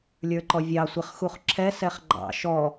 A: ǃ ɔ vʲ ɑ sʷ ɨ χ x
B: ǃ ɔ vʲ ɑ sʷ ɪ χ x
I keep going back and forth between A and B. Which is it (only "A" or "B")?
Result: B